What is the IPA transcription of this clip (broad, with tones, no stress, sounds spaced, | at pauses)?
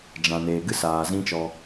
d͡ʒ ã˨ n eː˨ ɡ ɨ˦ s aː˨ z ĩ˦ t͡ʃ ɔ˧